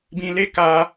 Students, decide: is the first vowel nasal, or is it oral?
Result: nasal